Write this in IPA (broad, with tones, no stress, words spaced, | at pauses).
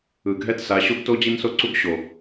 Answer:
ɯ˨ɡʱɛ˦tsa˨˦ ɕo˦ɡto˦d͡ʑi˦nso˦ ǀu˦ɡɕo˨